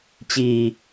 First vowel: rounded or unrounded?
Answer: unrounded